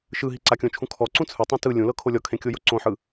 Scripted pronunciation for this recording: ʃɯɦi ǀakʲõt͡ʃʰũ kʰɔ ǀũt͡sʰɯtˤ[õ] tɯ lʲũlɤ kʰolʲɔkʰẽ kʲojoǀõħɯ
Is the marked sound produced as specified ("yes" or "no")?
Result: yes